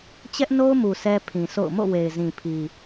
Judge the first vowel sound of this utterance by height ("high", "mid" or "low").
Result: mid